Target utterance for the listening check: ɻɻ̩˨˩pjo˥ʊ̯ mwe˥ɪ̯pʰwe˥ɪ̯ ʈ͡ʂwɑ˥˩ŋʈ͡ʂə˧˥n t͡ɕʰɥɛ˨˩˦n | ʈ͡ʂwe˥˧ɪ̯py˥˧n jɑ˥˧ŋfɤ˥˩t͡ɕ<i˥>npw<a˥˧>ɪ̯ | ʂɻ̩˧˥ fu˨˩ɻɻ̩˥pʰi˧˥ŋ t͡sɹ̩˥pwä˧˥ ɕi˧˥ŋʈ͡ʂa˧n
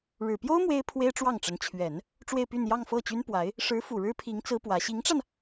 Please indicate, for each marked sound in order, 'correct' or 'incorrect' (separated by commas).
incorrect, incorrect